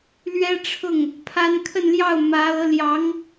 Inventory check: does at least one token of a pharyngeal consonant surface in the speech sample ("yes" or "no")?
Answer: no